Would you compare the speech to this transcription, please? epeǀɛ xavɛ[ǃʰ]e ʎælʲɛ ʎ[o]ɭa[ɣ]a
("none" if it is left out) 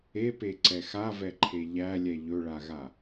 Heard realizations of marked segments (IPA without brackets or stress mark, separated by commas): ǃʰ, ɵ, ɣ